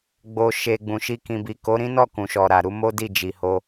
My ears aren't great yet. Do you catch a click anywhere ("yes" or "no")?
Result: no